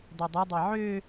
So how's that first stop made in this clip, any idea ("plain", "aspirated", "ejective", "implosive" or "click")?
plain